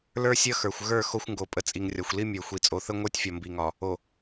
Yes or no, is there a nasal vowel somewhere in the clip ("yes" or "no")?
no